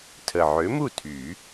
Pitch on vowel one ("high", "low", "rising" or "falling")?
low